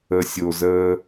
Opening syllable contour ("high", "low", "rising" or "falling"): low